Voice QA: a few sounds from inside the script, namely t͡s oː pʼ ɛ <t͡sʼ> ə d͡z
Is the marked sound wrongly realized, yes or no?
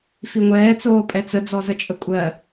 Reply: yes